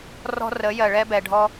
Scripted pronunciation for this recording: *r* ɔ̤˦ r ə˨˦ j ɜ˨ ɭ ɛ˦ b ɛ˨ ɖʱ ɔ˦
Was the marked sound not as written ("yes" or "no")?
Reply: no